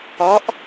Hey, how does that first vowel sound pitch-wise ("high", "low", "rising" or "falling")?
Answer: rising